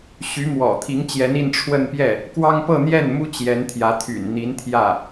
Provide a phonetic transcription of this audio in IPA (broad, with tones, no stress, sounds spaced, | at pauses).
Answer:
ɕ y˧˥ m w ɔ̰˨˩ t̪ʰ i˧˥ ŋ t͡ɕ j ɛ˧˥ n i˥˧ n ʈ͡ʂʰ w ə˥˧ n p j ɛ˥˩ | k w ɑ˥ ŋ p ɤ˥˧ n̪ j ɛ˥˩ n m u˥ t͡ɕ j ɛ˧˥ n t̪ʰ j ä˧˥ t̪ʰ y̰˨˩ n n̪ i˧˥ n t̪ʰ j ä˥˩